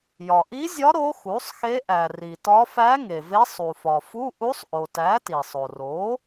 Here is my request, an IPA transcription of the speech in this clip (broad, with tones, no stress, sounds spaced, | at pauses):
j ɒ˩ ʔ i˧˥ zʲ ɒ˧˥ ɾ o˧˥ x u˩˥ sˤ x e˧˥ ʔ æ˩ r i˩ t ɒ˧˥ f æ˧˥ ŋ e˩ v e˧˥ sˤ u˩ f ɒ˩ f u˧˥˧ ʔ u˧˥ sˤ ʔ o˩ t æ˩˥ t i˩ sˤ o˩ r o˩˥